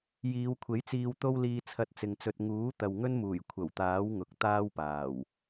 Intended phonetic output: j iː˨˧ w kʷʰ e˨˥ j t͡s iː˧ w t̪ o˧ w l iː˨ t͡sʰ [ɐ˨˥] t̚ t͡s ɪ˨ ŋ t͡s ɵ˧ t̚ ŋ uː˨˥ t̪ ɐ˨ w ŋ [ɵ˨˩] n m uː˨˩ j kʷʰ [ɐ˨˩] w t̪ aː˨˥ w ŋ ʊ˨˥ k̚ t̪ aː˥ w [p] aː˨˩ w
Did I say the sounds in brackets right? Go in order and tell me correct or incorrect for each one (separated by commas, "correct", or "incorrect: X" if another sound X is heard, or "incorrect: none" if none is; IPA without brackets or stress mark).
correct, incorrect: ɵ˥, correct, correct